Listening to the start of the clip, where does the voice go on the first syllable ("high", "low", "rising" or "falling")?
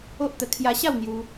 high